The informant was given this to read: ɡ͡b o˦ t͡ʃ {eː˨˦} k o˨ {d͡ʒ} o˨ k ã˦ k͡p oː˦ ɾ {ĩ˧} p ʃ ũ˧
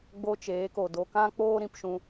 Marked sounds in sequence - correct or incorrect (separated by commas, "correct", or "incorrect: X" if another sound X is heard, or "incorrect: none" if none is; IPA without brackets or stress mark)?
correct, incorrect: d, correct